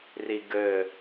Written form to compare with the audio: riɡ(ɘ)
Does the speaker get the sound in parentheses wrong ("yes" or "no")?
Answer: no